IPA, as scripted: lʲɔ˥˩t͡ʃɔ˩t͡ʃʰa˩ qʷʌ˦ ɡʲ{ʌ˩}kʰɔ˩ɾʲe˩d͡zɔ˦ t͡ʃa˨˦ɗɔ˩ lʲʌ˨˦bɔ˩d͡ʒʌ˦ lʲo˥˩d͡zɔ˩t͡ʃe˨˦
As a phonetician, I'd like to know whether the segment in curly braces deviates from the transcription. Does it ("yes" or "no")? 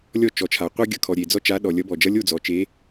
no